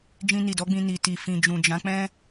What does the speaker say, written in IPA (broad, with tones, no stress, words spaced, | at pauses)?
d͡ʒĩ˧ni˨dɔ˨˦ɡ͡bĩ˧ ni˨ti˨ fĩ˨d͡ʒũ˨d͡ʒã˨˦k͡pɛ̃˦